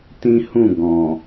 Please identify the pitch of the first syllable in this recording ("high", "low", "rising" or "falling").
high